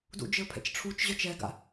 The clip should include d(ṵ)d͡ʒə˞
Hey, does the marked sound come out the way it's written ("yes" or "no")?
yes